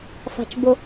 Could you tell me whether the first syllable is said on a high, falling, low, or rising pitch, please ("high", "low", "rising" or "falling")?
low